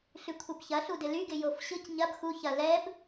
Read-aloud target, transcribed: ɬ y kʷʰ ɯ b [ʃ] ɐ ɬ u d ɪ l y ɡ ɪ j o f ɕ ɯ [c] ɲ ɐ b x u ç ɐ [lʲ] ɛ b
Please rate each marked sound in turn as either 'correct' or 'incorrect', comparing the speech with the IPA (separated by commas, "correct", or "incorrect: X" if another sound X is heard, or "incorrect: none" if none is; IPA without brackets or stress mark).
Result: incorrect: ç, correct, incorrect: l